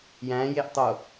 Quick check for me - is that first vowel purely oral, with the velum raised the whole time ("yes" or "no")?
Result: no